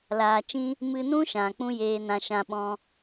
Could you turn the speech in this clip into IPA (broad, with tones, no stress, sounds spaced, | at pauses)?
l aː˨ t͡ʃ ĩ˧ | m ɨ˧ n ũ˦ ʃ ã˨ k͡p ũ˦ j eː˧ n ã˧ ʃ ã˧ ɓ ɔ̃˧